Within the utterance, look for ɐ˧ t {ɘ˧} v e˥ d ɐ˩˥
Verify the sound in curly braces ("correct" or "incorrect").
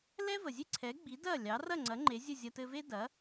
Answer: correct